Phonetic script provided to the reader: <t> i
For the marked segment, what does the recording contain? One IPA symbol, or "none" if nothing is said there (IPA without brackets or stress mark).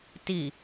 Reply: t